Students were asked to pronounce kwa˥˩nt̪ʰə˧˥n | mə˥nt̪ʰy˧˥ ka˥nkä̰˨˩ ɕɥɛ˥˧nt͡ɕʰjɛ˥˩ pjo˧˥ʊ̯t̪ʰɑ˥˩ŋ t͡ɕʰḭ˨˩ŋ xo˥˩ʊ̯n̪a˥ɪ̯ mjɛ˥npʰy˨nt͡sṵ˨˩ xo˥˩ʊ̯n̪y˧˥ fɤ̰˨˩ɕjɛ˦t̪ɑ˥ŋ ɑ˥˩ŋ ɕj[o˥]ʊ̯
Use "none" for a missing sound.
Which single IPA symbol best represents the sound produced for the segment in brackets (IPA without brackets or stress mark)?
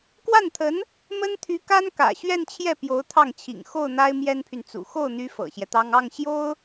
o˥